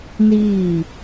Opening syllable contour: falling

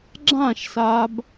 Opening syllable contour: falling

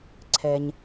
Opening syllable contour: low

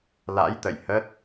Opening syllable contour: rising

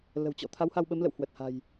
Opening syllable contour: low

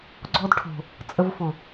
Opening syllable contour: high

